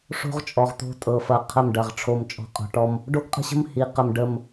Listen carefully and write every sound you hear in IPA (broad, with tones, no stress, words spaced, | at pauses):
ʂo̤˦ʁt͡ʃʼɔ˨ʁt̪o̤˦ tʼɤ˨ fɐ˨qʰə˦˨mɖɐ˨ʁ ʈ͡ʂʰo˨mt͡ʃʼɔ̤˨ qʼɔ̤˨ʈɔ˦m | ɖo˦ɡqʼə̤˦ɕə̤˦m hi˨˦ qə˨mɖə˦˨m